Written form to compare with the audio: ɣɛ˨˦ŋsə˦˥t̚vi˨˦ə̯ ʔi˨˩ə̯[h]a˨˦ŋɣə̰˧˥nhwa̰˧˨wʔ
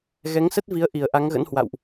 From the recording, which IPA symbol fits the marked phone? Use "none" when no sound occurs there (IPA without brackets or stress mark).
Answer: ʔ